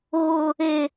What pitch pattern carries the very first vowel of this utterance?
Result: low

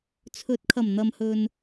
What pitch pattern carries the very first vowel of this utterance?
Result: rising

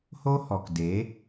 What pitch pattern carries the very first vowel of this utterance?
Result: high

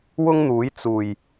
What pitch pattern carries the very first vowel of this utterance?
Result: high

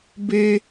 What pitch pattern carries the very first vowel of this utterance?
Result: high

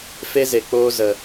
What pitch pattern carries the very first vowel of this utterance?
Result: high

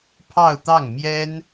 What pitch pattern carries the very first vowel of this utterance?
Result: falling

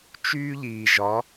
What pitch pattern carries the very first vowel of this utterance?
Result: high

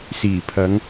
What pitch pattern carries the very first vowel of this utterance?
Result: low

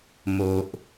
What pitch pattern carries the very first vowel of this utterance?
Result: low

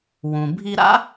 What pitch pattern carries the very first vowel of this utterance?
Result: low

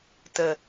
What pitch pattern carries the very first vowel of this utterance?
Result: low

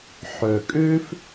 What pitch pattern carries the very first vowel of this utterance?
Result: low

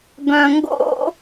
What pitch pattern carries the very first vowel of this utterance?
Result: low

